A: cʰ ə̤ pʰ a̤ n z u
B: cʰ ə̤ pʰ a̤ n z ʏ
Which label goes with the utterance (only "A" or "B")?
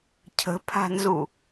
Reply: A